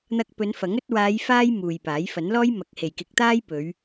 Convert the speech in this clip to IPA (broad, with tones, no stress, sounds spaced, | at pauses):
n̪ ɐ˧ k̚ p ɵ˨˧ n f ɐ˨˥ ŋ ɵ˧ t̚ w aː˨˧ j f aː˧ j m uː˨ j p aː˨˥ j f ɐ˨˥ n l ɔː˥ j m ɐ˨˥ k̚ h e˨ j k ɪ˨˥ k̚ t̪ aː˥ j p ɵ˨˧ ɥ